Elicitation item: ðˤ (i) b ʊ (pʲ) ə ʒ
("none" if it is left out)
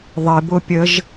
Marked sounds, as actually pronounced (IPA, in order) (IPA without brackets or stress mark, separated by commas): i, pʲ